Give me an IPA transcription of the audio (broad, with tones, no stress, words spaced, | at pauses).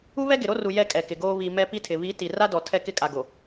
u˦βɛ˦ ɡɪ˨ɾo˦ru˨ jɛ˦kʼɛ˨kɪ˨ɡoː˦ βi˨ mɛ˦ pi˦tʰɪ˨ βi˨˦ ti˨ra˦dɔ˨ tʰɛ˦kɪ˦˨kʼa˨ɡo˨